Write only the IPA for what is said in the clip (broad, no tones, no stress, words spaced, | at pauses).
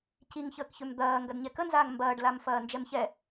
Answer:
ciŋçəːkçøm d̪ɐː ŋɡɐdɲɛkənzaːŋ mbɐːɖlam fɐːnd͡ʒɛmçɛ